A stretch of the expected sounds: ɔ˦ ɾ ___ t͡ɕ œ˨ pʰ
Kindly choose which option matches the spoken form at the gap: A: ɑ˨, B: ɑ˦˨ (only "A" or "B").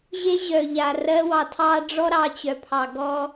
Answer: A